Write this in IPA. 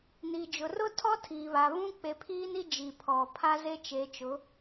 n i˨ d͡ʒ ʊ˨ r ʊ˦ tʰ ɔ˦ tʰ iː˨ β a˨ β ũ˦ k͡p e˨ pʰ iː˦ n i˦ d͡ʒ i˨ pʰ ɔ˨ pʰ a˦ z e˦ t͡ʃ e˨˦ t͡ʃ ʊ˨˦

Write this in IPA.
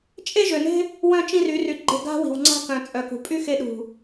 t͡ʃʼ e˦ ʒ ø˨ n e̤˦ | w œ̃˦ t͡ʃ ĩ˦ r y˨˦ r y˨ ɡ͡ǃ e̤˦˨ ɡ a̤˦ w i̤˨ w ŋ͡ǀ a̤˦ k œ̃˨ t͡sʼ œ˨ k ṳ˨ pʼ y˦ x e˧ ɗ ṳ˨

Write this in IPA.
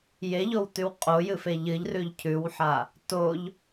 j e ʎ o w t ʉ w qʼ o j ɨ f e ʎ ɨ ʎ r ʉ ʎ cʰ ʉ w ħ a | t o ʎ

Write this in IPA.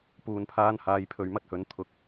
p uː˨ n pʰ aː˧ n h aː˨˧ j pʰ ɵ˨˧ ɥ m ɐ˥ t̚ h ɵ˨˥ n t̪ʰ ʊ˨˥ k̚

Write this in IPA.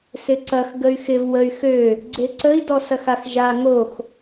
s ɪ ǀ ɐ x ɡ ə y̯ x ɪ v w ə y̯ x ø | ɡ͡ǀ e ǀ ə i̯ d ɔ s ɐ x a x ʒ a ŋ o x

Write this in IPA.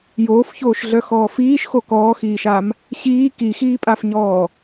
j oː f ç oː ʃ ɮ œ x ɔː f iː ʃ x o k ɔː x iː ʃ a m | ɕ iː k i x iː pʼ a f ɲ ɔː

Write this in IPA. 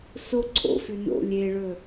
s o ǀʰ o̰ f ʉ n o̰ lʲ e ɭ ɵ

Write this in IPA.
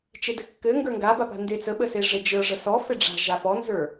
t͡ʃ e d ɘ kː ɘ ŋ ɡ ə˞ ŋ ɡ a b a p a̤ n d e t͡s ə ɓ ə s e ʐ e d͡ʒ ə˞ ʐ ə s ɔ f e ɖ͡ʐ a̤ ʒ a f ɔ n z ə˞

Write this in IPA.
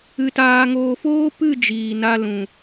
ɨ˧ t aː˧ ŋ oː˧ f oː˦ p ɨ˦˨ d͡ʒ iː˨ n a˧ l ũ˨

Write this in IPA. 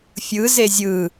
fʲ ɯ z e zʲ ɯ

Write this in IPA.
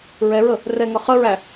ɹ ɛ ɹ ə | r ɛ ŋ ʌ χ ə ɹ æ

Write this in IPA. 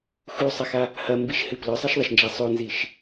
x u sˤ ɐ x a | h ɐ m b i ʃ h ɨ p l ɵ sˤ e ʃ ðˤ ɐ ʃ n d͡ʒ a sˤ o n z i ʃ

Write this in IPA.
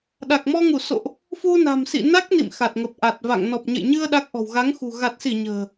ɗ a˨˩ k̚ m ɔ˧ ŋ u˧˩ s o̰˧˨ ʔ | f u˧ n a̤˨˩ m s ḭ˧˨ n a˦˥ k̚ n ḭ˧˨ m x a˨˩ t̚ ŋ ə˨˩ p̚ ʔ a˨˩ t̚ v a̰˧˨ ŋ n ɔ˨˩ p̚ ɲ ə̰˧˨ j ɲ ɨ˧ ə̯ ɗ a˦˥ k̚ ʔ ɔ̤˨˩ w ɣ a˨˦ ŋ x ṳ˨˩ ɣ a˨˩ t̚ s i˧˩ ɲ ə̤ː˨˩

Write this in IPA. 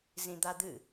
z ĩ d̪ a d̪ ɨ

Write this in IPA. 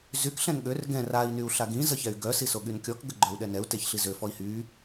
z y k ɬ ɛ̃ n ɠ ø r ɡ ɛ̃ r a i̯ n y u̯ ɬ a ɡ ĩ z ə ç ɛ y̯ ɡ œ s i s o ɠ y n kʲ ɔ k ɡ ə ɡ͡ǃ œ u̯ ɗ ɛ n ɛ u̯ t e ç ɬ i z ø f ɔ i̯ h y

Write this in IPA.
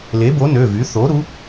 l e˩˥ b o˩˥ n ø˩˧˩ v y˩˥ θ o˩˥ ɾ u˩˥

